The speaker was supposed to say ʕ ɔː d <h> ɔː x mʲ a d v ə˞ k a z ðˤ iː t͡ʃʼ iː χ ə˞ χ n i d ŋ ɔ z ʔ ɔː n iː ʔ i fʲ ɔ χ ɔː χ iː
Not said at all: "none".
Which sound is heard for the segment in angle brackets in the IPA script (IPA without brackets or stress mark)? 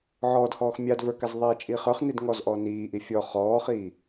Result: h